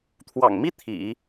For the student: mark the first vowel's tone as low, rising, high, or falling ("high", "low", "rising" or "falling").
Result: low